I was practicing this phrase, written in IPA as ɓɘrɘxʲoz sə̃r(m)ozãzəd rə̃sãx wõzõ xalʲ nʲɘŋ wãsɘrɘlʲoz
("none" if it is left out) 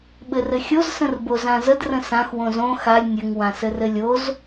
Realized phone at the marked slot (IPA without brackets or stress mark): b